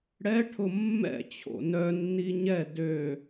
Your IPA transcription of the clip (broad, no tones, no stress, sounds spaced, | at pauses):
ɽ ɛ ʈʰ ʊ mː ɛ̰ t͡ɕʰ o̰ n œ nː i ɲ ɛ d ø